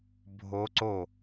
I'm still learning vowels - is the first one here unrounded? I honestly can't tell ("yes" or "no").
no